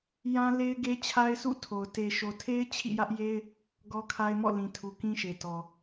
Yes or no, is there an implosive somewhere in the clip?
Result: no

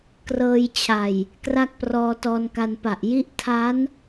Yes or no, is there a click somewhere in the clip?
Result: no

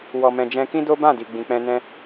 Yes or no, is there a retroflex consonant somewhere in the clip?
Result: no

